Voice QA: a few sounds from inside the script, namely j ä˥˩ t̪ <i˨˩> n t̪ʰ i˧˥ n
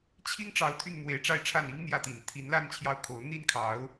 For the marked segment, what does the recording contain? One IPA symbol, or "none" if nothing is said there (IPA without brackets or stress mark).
i˨˩